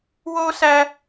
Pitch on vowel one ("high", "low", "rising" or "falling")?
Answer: high